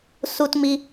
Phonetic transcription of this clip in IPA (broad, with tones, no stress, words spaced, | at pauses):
su˧tmi˧